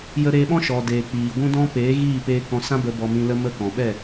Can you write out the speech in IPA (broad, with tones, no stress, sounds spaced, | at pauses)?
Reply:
j ə˦ ɾ eː˧ ɓ ɔ̃˦ ʃ ɔ˨ d eː˨ k͡p iː˨ ɡʷ ũ˦ d ɔ̃˦ p eː˨˦ ɣ iː˦˨ p eː˧ k ɔ̃˧ s ã˦ b ə˧ b ɔ˧ m ĩ˧ l ə˦ m ə˦ k ɔ̃˨ ɓ ɛ˦˨